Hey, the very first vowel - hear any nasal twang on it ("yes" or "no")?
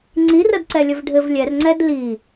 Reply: no